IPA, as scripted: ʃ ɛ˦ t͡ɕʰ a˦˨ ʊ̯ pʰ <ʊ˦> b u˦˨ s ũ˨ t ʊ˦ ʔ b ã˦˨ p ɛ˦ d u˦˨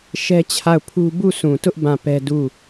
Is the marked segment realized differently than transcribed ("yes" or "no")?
yes